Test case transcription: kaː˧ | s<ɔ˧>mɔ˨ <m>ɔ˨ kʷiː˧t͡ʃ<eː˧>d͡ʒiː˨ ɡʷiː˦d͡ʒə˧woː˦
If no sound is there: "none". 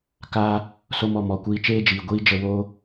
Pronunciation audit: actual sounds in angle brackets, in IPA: o˧, m, eː˦

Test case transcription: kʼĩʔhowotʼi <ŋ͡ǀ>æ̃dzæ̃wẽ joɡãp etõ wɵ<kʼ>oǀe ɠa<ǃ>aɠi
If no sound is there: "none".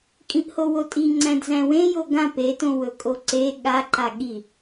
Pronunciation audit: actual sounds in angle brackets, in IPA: ŋ͡ǀ, kʼ, ǃ

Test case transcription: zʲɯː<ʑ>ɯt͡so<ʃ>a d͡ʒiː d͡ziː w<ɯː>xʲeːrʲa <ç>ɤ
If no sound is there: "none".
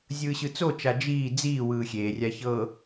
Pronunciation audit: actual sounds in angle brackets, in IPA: ɕ, t͡ʃ, ɯː, ç

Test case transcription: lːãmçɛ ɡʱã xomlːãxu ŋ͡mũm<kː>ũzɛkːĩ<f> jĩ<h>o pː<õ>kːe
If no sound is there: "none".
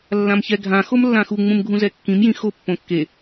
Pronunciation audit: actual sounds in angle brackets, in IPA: ɡʱ, m, x, õ

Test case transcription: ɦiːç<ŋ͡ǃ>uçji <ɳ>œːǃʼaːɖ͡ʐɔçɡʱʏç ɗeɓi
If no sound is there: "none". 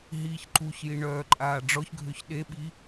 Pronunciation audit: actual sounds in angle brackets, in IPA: ǃ, ɳ

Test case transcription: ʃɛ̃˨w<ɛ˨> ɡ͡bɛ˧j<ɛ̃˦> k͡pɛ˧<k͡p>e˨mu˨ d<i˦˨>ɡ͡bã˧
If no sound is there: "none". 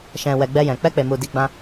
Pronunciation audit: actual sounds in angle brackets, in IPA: ɛ˨, ɛ̃˨, k͡p, i˨˦

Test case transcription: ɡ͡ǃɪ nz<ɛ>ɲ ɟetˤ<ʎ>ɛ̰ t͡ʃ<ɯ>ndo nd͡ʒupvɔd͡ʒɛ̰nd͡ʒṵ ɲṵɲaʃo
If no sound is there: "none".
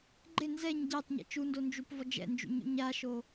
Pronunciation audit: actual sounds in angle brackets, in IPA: ɛ, ɲ, u

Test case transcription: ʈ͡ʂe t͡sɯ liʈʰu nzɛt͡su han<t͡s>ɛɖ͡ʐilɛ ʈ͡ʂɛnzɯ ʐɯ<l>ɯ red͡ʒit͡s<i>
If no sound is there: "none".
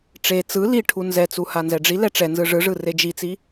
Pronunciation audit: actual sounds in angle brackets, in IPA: z, ʐ, i

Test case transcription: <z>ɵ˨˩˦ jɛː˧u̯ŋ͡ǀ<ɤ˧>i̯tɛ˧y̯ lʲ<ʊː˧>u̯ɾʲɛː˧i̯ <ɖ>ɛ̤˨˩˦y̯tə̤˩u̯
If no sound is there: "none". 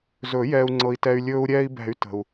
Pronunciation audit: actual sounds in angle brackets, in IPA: z, ɤ˧, ɵː˧, b

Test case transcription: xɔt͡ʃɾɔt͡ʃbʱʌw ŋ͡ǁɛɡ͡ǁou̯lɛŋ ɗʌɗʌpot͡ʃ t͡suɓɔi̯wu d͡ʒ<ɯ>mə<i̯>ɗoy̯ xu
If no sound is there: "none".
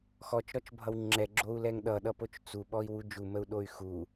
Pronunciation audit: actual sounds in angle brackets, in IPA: u, u̯

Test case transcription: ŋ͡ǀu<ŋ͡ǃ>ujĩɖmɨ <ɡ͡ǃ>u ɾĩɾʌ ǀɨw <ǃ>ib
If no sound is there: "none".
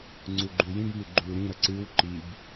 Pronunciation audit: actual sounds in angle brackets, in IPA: ɡ͡ǃ, ɡ͡ǃ, ǃ

